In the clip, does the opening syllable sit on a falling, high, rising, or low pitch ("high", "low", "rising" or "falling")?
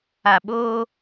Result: low